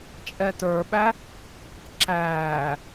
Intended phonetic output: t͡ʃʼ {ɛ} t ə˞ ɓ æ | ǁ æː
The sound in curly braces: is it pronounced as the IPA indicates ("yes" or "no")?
yes